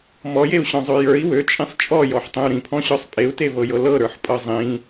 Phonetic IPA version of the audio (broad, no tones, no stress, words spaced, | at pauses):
mɔjeu̯ɕɔ̃zˤø jə˞i̯ wøt͡ʃʼĩsˤ t͡ʃʼɔjɔħtˤẽu̯ ɾĩpʰɔ̃ɕɔsˤ pʼeu̯tevɤjɤ lɤɾə˞ħpʼɤ zˤĩ